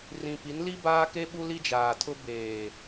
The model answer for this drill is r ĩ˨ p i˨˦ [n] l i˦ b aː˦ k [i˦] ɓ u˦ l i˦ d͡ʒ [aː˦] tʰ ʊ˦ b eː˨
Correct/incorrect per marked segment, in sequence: correct, incorrect, incorrect

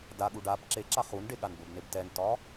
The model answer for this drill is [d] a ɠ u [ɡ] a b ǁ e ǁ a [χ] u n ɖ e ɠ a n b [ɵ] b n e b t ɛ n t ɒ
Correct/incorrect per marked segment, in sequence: correct, incorrect, correct, correct

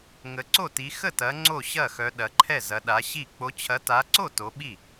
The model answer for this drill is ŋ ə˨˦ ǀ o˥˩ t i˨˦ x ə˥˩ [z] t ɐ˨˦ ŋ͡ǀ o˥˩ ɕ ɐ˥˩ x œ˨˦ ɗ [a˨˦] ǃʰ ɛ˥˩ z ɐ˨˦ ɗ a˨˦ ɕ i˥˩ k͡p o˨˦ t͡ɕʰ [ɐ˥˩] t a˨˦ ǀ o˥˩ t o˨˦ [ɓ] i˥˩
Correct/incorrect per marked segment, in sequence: incorrect, incorrect, incorrect, correct

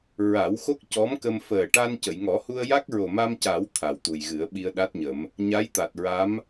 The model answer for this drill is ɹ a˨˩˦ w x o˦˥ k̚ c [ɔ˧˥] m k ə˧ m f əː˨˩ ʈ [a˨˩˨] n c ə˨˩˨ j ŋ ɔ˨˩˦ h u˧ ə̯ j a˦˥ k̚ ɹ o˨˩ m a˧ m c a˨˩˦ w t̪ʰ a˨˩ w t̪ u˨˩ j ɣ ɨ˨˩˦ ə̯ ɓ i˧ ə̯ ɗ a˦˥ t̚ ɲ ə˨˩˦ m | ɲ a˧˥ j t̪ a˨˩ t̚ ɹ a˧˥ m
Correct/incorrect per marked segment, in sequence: correct, incorrect

